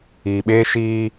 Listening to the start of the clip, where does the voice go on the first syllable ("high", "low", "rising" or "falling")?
low